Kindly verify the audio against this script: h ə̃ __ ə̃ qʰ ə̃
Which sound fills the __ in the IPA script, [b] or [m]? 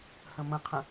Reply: m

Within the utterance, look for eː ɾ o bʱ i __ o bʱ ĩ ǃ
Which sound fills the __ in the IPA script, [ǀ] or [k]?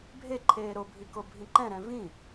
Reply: k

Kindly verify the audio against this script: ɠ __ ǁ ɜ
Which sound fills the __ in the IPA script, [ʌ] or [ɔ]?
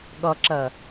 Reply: ʌ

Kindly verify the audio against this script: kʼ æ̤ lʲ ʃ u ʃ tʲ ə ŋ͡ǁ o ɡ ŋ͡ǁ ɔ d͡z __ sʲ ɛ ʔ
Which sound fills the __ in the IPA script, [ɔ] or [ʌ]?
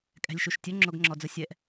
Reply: ʌ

